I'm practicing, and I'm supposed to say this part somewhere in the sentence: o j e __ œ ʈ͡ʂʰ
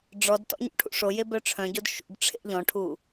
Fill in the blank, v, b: b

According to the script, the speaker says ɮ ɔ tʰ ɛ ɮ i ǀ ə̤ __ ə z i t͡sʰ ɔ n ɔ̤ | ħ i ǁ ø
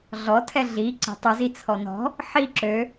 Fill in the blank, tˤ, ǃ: tˤ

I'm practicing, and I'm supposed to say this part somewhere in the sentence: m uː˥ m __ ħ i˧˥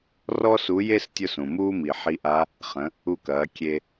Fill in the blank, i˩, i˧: i˩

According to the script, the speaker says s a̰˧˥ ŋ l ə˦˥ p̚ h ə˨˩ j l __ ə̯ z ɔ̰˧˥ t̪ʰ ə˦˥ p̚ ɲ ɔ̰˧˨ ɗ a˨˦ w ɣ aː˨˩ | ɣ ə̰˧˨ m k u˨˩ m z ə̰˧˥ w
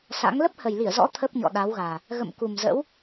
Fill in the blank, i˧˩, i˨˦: i˧˩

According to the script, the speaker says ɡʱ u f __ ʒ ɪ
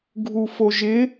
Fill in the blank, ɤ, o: o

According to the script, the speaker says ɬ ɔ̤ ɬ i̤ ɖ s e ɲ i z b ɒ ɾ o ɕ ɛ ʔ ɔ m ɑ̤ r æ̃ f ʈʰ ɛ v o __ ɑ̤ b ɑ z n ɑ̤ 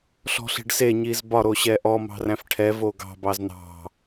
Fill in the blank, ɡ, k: ɡ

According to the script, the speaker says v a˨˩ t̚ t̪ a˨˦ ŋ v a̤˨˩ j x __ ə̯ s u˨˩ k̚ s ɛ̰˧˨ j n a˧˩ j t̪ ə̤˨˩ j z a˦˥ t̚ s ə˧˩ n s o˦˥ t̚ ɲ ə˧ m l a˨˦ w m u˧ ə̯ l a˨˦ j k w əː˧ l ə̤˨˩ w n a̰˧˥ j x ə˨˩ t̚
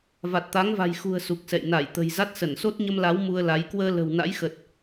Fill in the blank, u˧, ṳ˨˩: ṳ˨˩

